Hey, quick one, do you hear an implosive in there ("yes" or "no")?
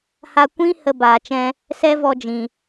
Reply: no